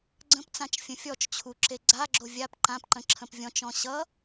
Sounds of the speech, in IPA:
ɡ͡ǀə̃pt͡sãt͡ʃ fʲə̃fʲɔt͡ʃt͡ɕʰu ǁeɡ͡ǀaɡ͡ǁo vʲap ǃãpǃə̃ ǁʰə̃pvʲɔ̃t͡ʃɔ̃ ɕʌ

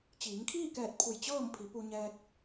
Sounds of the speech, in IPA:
t͡ɕiː˩˧ŋkʰiː˥˨kɛː˧˩t̚ pʰu˧˩jt͡ɕɤː˥˨mpʰi˩˧ pu˧ɲɛː˧k̚

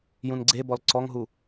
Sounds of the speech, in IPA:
jũnɡ͡ǀebɔl ǀɔŋɦu

